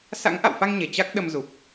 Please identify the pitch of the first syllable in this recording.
rising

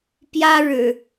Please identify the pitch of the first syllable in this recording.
high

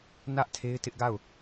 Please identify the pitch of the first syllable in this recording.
high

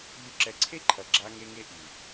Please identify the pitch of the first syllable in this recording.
low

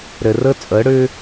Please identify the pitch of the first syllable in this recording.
low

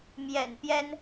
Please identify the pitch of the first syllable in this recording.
low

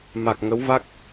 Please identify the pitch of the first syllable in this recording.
low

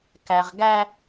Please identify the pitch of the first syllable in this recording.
low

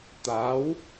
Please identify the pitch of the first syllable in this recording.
rising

